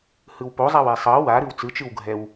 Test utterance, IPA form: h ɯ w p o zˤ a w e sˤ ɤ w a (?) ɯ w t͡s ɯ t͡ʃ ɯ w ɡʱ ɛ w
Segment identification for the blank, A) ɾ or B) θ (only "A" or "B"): A